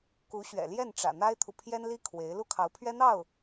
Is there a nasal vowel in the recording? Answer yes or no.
no